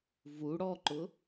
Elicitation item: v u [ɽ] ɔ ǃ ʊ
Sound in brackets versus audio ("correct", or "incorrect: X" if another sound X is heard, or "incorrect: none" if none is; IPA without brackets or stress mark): correct